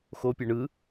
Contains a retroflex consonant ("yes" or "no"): yes